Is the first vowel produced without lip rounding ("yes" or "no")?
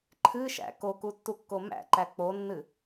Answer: yes